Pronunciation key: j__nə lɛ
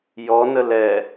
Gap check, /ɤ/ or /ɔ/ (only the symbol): ɔ